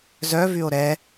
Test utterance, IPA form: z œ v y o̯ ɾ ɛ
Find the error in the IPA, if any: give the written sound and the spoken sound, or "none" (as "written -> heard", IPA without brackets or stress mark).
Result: none